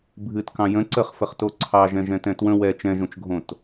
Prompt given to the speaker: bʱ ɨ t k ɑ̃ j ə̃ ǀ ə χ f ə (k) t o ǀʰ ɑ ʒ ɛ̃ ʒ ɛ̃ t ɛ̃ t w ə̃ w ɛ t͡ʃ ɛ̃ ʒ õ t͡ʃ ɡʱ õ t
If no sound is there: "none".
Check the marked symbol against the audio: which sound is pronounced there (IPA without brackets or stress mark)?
χ